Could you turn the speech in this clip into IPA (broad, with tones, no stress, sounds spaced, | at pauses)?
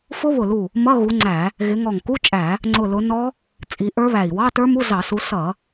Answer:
f ʊ˦˥ β ʊ˧˩ l u˧˩ | m ʌ˧˥˧ ɣ u˨˦ ŋ͡ǀ æ˧˩˧ | ɣ ɪ˨˦ ŋ ɔ˧˩ ŋ k u˧˥˧ t͡ʃʼ æ˧˩˧ | ŋ͡ǀ ʊ˧˩ l ʊ˨˦ n ɔ˦˥ | t͡sʼ i˨˦ ʔ ə˞˦˥ β æ˧˩ i̯ w ɑ˧˥˧ t ə˞˦˥ m u˧˥˧ z ɑ˧˩˧ s u˨˦ s ʌ˧˩˧